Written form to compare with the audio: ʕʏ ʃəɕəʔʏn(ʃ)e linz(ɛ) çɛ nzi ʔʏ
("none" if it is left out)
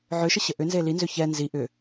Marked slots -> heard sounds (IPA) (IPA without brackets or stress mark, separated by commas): z, ʏ